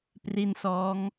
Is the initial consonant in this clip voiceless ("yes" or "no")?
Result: yes